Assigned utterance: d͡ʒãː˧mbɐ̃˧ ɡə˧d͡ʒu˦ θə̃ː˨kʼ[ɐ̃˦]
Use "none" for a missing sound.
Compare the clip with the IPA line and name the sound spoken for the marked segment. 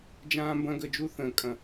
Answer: ɐ̃˨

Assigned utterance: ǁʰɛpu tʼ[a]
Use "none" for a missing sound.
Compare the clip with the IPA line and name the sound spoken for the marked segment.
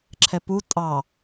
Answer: ɑ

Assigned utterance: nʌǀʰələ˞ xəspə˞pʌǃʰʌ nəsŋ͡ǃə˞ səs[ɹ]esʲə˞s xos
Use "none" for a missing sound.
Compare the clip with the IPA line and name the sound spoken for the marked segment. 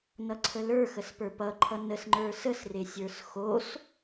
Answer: r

